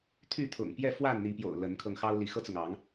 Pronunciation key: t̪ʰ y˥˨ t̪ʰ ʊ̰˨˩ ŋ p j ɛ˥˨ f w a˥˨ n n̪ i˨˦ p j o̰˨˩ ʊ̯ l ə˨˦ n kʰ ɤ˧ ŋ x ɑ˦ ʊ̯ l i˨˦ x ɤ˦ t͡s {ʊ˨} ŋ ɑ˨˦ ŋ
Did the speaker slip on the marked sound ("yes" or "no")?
no